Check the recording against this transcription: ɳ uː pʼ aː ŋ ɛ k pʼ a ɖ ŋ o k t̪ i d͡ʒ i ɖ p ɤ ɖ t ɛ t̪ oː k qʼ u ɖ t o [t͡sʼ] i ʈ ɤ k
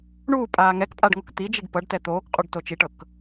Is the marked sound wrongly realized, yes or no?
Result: yes